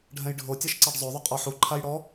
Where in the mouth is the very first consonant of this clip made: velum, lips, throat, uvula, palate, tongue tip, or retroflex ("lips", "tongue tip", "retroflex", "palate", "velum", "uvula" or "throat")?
retroflex